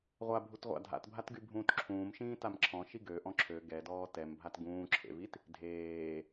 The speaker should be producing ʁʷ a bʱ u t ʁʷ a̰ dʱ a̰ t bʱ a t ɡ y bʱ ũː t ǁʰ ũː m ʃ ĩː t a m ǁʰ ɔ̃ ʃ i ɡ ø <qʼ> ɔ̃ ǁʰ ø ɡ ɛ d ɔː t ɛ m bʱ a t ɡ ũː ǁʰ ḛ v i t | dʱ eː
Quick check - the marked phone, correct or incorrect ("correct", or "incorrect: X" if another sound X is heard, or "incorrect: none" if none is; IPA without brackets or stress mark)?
incorrect: ʔ